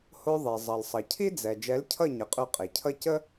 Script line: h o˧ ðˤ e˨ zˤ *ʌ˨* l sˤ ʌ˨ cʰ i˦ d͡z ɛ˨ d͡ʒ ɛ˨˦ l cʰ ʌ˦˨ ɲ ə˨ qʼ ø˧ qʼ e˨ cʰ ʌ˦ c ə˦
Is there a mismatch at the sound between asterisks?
no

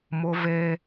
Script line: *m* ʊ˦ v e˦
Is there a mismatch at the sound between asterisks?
no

